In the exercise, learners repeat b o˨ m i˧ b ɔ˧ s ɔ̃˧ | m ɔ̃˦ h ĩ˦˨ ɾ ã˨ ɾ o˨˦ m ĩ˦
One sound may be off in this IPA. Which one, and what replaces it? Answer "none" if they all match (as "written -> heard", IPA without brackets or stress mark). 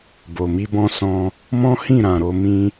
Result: ɔ˧ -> ɔ̃˧